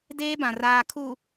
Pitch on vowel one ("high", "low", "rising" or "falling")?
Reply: high